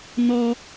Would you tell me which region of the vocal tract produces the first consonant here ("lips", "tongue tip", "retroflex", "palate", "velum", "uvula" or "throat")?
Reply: tongue tip